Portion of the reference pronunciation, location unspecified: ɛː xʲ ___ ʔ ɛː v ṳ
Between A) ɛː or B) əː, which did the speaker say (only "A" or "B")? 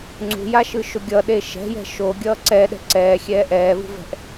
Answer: A